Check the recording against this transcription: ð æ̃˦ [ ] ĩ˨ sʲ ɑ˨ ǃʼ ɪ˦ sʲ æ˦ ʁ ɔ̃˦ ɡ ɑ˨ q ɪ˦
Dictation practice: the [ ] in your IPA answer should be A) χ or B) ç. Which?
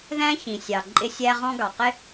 B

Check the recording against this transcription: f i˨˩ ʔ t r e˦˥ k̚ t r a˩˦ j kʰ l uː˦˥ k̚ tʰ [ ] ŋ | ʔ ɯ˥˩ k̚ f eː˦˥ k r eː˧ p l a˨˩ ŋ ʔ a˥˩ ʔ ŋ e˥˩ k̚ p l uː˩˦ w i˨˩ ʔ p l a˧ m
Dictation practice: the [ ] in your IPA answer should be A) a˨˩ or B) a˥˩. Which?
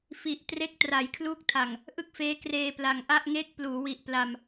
A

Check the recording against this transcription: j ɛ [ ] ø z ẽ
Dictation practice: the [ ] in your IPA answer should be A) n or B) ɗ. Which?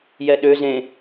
B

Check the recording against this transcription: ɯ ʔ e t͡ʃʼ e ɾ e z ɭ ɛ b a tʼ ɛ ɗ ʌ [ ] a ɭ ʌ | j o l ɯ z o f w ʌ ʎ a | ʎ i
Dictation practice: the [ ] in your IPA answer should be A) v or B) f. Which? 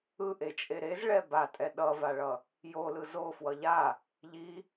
A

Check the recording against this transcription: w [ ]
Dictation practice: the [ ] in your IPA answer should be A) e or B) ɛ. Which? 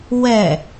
B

